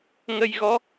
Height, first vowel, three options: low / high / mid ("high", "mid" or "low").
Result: mid